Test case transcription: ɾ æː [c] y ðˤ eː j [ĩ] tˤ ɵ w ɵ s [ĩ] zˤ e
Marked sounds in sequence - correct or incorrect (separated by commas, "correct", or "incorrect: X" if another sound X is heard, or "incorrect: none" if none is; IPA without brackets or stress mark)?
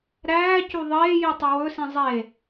correct, incorrect: i, correct